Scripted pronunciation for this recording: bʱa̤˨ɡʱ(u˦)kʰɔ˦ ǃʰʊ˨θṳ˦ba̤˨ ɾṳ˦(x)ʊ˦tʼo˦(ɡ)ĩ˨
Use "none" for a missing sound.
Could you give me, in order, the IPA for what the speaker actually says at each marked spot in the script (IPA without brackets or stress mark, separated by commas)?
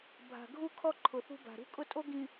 u˦, kʼ, ɡ